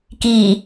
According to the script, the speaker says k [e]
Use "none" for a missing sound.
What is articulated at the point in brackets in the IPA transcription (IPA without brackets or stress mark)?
i